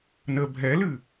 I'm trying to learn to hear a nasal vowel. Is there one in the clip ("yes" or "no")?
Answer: no